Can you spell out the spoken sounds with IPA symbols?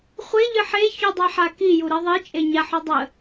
χʷ e ʎ ɨ ħ e ç u dˤ a ħ a k i j u ɾ i ðˤ i t͡ʃʼ e ɲ a ħ u dˤ ə

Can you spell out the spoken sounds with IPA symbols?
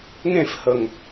ŋ ẽ f h ə ŋ

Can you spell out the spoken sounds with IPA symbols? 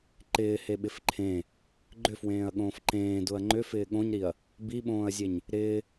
ǃ ɪː h e ɓ ɪ f ǃʰ ẽ | ɡ͡ǃ ʏ f w ẽː ɐ̯ ɠ õː f ǃ ẽː d ʊ ɐ̯ ŋ͡ǃ ʏ f ɪː ɠ õ ɲ ɾ i ɐ̯ | b i ɓ õː ɐ̯ zʲ e ɲ | ɾ ɪː

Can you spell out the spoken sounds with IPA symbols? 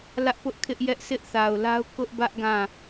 l ä˦ ʔ p ʊ˦ ʔ kʰ ɪ˦ ʔ j ɛ˦ ʔ s ɪ˦ ʔ θ a˨ ʊ̯ l a˦ ʊ̯ k ʊ˦ ʔ b ä˦ ʔ ɡ ã˦˨

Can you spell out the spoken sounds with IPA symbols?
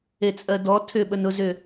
e t͡sʼ ɜ d ɔ tʰ ʏ ɓ ə n ʊ z ʏ

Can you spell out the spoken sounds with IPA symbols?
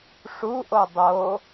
ʂ u ʔ o dˤ o

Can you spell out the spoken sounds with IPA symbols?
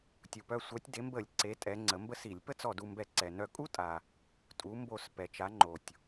tʲ u˩ p œ˧˩ sʷ œ˩˥ tʲ d e˩˥ m b ə˧˩˧ lʲ ǀ e˩˥ tʼ ɛ˩˥ ŋ͡ǀ ə˩˥ m b ə˥ s i˧˩˧ lʲ p ə˥ t͡s ɔ˧˩ d u˧˩ m b ɛ˧˩˧ ǀ ɛ˩ n œ˧˩ kʼ u˥ tʼ a˩ | tʼ u˩˥ m b o˧˩ s p ɛ˩ t͡ʃ a˩˥ ŋ͡ǃ o˩ tʲ

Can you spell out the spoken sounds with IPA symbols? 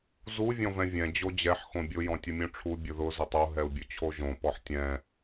z u vʲ ɔ̃ v ɛ̃ vʲ ɛ̃ d͡ʑ o d͡ʑ ɛ ħ x õ bʲ ʊ j ɔ̃ tʲ ʊ mʲ ũ ʈ͡ʂʰ u bʲ ʊ ð ʊ z ʊ tˤ o ɦ ɛ u̯ bʲ ʊ t͡ɕʰ o ʒ õ p ɔ ħ tʲ ɛ̃

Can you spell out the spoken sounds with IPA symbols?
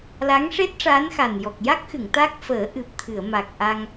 l a˧˥ ŋ ʂ e˦˥ t̚ ʂ aː˧˥ n x a˨˩ n j ɔ˨˩ k̚ j a˦˥ k̚ x ɨ˨˩˨ ŋ t̪ a˦˥ k̚ f əː˨˩˦ ʔ ɨ˨˩ p̚ t̪ʰ ɨ˨˩˨ ə̯ m a˨˩ k̚ ʔ a˧ ŋ

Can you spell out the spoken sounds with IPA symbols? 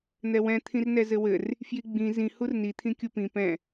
n̪ ɛ w ɛ̃ t̪ʰ ĩ r n ɛ z ɘ w ɘ r | f j i ɡ͡b ĩ z ĩ h u r n i t̪ʰ ĩ kʲ u p ĩ p ɛ̃

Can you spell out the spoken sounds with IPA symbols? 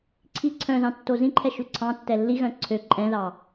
ǀʰ i ǀʰ œ̃ z ɑ̃ tː o z ĩ ǃʰ ɛ ʃ ʉ ǀʰ ɑ̃ tː ɛ lː i ɣ œ̃ ǀʰ ø ǃʼ ɛ̃ ð ɑ

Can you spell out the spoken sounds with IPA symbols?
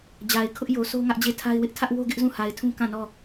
d͡ʑ a˨ ɪ̯ kʰ ʊ˦ ʔ j o˨ s o˦ ŋ ä˦ ʔ d͡ʑ e˦˨ tʰ a˦ ɪ̯ w ɪ˦ ʔ tʰ ä˦ ʔ w o˦ ɡ ɪ˦ ʔ z ũ˦˨ h a˨ ɪ̯ tʰ ũ˦ k ã˦˨ n ɔ˦˨

